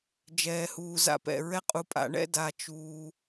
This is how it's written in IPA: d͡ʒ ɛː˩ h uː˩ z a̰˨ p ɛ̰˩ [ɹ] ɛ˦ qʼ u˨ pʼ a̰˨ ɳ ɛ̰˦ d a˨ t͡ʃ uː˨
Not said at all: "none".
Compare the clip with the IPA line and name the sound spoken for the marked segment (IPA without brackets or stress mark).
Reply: ɹ